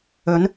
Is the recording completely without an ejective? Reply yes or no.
yes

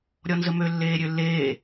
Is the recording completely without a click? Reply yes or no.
yes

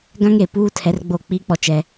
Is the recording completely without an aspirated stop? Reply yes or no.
no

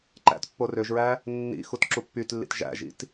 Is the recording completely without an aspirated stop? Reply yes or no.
yes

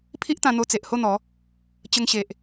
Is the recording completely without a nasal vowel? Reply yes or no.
no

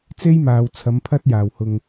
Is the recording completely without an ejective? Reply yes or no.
yes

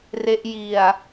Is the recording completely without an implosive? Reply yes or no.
yes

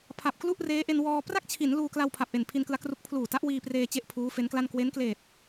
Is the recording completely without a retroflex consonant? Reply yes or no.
yes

